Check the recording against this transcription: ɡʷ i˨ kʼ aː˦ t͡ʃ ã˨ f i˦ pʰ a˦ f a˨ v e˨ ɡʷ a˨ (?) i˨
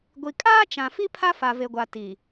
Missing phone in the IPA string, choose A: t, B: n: A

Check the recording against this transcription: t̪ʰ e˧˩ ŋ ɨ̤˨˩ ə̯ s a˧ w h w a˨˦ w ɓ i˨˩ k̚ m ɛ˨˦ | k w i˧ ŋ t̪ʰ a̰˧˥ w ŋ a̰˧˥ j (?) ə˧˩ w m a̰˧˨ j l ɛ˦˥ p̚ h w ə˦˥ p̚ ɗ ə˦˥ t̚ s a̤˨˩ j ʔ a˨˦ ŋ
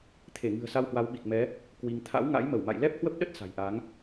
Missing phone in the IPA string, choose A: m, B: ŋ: A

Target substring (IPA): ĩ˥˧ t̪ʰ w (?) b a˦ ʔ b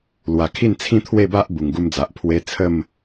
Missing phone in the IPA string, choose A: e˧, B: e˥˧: B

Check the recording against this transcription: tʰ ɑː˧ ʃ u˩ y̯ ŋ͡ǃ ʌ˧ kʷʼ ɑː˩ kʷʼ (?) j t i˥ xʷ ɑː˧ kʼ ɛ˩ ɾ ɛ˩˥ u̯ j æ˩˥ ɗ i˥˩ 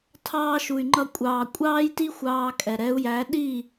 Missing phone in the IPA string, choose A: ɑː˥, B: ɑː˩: A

